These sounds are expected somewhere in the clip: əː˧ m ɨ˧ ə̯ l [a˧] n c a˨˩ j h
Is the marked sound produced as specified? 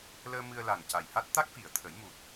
no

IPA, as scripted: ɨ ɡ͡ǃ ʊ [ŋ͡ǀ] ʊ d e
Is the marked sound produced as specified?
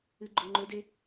no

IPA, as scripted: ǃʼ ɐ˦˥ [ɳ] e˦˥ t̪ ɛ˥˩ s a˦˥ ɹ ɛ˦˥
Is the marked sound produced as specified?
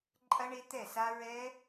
yes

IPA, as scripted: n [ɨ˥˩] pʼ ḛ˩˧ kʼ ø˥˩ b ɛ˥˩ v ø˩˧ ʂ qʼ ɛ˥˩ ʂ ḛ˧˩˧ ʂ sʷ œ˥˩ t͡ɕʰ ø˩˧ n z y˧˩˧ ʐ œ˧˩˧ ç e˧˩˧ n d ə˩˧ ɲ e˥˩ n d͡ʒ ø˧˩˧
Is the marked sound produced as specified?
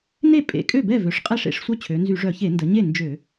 no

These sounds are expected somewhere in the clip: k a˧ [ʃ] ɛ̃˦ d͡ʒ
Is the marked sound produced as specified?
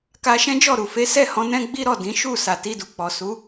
yes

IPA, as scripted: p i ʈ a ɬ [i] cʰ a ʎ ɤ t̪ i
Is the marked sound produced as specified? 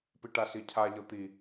yes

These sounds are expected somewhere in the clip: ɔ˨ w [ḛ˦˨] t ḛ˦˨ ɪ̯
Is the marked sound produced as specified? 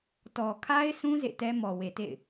no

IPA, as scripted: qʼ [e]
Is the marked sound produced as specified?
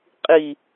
no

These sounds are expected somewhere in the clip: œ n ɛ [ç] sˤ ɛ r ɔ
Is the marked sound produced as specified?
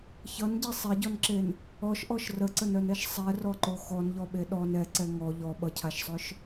no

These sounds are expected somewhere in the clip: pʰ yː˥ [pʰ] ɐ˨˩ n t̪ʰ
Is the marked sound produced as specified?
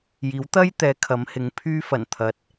no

